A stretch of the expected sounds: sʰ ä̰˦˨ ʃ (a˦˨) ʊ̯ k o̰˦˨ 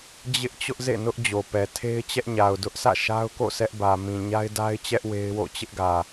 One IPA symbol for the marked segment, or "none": a˦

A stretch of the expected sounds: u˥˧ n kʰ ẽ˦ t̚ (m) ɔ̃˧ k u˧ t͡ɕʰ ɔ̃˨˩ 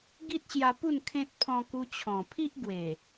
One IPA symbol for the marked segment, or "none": pʰ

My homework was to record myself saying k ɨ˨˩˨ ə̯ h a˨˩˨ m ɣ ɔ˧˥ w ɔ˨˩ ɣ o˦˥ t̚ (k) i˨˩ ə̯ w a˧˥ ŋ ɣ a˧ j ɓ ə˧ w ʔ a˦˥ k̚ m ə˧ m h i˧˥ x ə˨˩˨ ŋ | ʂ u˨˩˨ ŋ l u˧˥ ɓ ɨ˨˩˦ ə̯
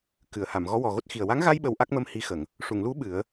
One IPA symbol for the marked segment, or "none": x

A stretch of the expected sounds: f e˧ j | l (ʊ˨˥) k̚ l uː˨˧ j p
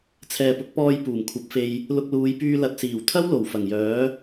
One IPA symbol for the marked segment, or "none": ʊ˧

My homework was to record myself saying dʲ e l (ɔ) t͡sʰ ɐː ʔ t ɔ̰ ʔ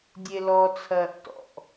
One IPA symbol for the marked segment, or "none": ɔ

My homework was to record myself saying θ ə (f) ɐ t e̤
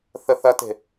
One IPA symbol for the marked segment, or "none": θ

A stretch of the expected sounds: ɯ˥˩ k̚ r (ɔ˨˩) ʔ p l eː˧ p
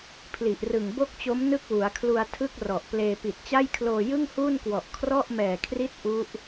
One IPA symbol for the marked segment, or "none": ɔ˨˩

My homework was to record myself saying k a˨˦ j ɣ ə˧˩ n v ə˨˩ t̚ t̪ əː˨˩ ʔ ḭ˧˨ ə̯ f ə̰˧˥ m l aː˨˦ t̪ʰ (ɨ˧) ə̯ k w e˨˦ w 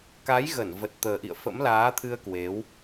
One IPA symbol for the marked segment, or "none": ɨ˧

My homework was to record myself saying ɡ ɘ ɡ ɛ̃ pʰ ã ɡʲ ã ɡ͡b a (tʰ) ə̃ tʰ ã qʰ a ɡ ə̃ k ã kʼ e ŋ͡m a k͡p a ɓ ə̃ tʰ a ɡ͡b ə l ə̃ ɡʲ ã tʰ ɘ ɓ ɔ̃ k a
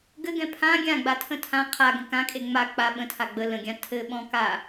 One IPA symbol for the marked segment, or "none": tʰ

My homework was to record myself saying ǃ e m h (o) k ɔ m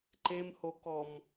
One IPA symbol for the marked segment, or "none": o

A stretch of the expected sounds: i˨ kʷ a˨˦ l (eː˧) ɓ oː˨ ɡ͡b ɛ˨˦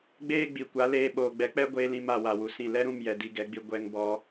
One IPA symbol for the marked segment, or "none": eː˧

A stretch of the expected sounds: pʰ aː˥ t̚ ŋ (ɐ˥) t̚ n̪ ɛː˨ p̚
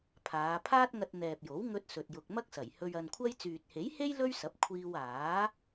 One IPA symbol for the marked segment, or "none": ɐ˧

